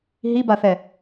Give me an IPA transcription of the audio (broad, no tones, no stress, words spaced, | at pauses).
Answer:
ɦibaθɛ